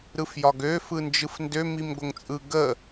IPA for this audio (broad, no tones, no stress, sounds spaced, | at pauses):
ɾ ɯ f j ɒ ɡ ø f ɯ n d͡ʒ ɯ f n d ø m i m ɡʷ ə ŋ t͡sʼ ɯ ɡ ə